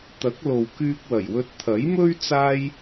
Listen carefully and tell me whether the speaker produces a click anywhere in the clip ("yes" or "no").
no